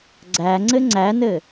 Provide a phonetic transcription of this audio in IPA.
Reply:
ɡ͡ǀ æ ŋ͡ǀ ɘ ŋ͡ǀ æ n ɘ

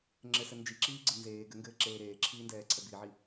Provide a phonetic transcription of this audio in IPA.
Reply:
ŋ͡ǁ ɘ s ɘ n d͡ʒ i ǁ iː ɡ͡ǀ ɘ n z eː ɡ ɘ ŋ ɡ ɘː ǁ eː ɾ eː ǁʰ iː n d ɛː ǀʰ ɛ b i ʕ i

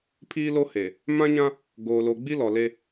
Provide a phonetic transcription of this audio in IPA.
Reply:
pʰ iː˦ l o˦ h e˨ | m ã˦ ɲ ã˦ | ɡ oː˨ l o˨ ɡ͡b i˦ l ɔ˨ l e˦

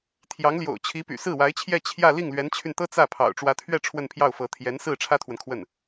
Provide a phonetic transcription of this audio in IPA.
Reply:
t̪ʰ j ɑ˧˥ ŋ l j o̰˨˩ ʊ̯ t͡ɕʰ i˧˥ p y̰˨˩ s ɹ̩˥˩ w a˧˥ ɪ̯ t͡ɕʰ j ɛ˥˧ t͡ɕʰ j ä˥˧ l i˥˩ ŋ l ɥ ɛ˧˥ n t͡ɕʰ y˧ n t̪ ɤ˥ t͡s ä˥˩ pʰ ɑ̰˨˩ ʊ̯ ʈ͡ʂ w ä˧˥ t̪ʰ ɥ ɛ˥˧ ʈ͡ʂʰ w ə˥˧ n pʰ j ɑ˥˩ ʊ̯ f ɤ˧˥ t̪ʰ j ɛ˧˥ n s ɹ̩˥˩ ʈ͡ʂʰ ä˥ t̪ʰ w ə˨ n kʰ w ə˥˩ n

